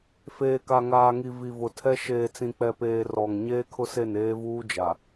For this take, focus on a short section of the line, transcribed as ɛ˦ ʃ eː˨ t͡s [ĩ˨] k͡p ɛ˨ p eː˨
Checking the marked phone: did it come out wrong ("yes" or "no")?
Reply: no